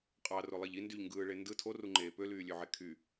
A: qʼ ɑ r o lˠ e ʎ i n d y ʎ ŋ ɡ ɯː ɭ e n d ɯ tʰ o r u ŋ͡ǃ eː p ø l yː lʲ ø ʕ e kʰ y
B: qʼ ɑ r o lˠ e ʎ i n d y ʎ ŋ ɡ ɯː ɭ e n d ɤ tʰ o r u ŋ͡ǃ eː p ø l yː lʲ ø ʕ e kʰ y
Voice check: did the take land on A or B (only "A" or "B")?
A